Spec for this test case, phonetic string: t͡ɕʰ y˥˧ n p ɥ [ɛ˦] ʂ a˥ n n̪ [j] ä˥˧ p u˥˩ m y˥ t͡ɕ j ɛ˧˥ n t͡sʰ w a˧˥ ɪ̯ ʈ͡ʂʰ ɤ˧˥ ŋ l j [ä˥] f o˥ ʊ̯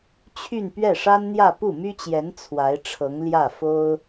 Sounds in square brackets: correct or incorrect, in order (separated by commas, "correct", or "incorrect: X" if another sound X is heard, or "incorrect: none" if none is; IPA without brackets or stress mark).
incorrect: ɛ˥˩, correct, incorrect: ä˥˩